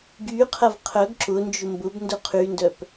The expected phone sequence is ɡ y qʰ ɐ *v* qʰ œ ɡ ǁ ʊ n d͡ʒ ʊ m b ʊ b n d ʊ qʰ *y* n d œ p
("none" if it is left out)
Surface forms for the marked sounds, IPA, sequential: v, y

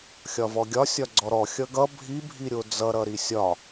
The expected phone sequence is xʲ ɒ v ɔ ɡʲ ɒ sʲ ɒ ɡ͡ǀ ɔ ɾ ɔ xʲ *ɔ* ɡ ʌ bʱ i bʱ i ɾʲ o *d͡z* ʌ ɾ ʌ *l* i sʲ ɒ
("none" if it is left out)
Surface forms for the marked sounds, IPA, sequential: ʌ, d͡z, ɾ

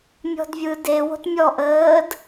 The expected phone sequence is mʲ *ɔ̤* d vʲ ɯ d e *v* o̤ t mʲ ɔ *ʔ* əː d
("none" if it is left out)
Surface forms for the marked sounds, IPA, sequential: ɔ̤, w, ʔ

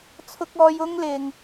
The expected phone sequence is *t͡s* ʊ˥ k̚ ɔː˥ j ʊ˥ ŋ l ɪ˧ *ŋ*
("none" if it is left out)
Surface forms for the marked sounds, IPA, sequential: t͡sʰ, ŋ

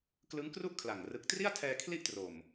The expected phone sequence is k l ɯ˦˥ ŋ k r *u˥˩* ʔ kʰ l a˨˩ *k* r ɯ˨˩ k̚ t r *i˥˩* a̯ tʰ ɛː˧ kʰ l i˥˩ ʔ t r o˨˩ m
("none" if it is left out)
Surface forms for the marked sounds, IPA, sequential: u˥˩, ŋ, i˥˩

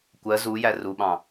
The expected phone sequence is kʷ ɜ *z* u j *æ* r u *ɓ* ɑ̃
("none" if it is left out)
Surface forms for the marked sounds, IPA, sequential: z, æ, ɓ

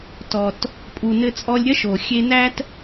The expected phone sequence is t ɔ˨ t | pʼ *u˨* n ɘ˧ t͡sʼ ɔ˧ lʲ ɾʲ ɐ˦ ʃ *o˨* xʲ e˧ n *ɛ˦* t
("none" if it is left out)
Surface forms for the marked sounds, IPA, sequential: u˨, o˨, æ˦

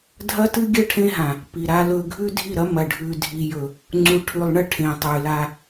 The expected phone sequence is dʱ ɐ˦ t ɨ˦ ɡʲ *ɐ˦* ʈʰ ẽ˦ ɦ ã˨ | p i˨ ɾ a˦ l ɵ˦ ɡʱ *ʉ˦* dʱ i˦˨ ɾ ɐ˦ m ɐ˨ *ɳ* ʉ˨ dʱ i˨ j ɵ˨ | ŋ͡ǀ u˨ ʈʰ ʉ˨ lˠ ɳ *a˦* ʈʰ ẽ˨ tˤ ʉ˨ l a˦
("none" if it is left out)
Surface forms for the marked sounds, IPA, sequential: ɐ˦, ʉ˦, ɖʱ, ɐ˦

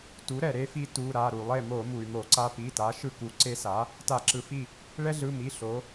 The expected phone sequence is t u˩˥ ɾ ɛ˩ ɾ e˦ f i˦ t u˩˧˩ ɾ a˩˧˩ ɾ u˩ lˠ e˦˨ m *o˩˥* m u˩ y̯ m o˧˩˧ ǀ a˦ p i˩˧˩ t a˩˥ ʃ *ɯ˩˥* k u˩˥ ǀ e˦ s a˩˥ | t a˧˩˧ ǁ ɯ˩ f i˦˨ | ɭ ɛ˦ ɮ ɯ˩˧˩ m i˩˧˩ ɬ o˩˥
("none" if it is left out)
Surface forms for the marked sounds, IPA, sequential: o˧˩˧, ɯ˦˨

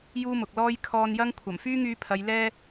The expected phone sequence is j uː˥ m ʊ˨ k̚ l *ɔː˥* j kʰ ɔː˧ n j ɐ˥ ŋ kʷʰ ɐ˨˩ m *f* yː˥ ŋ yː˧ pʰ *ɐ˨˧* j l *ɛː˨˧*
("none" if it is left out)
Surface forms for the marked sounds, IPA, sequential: ɔː˥, f, ɐ˨˧, ɛː˧

